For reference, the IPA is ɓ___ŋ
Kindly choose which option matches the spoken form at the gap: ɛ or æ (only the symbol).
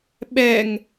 ɛ